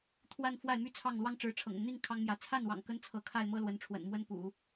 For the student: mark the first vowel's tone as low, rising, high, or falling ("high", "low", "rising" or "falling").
falling